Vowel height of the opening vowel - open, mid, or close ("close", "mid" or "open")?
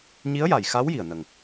close